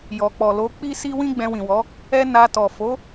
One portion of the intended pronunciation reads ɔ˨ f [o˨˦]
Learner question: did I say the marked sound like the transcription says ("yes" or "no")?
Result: yes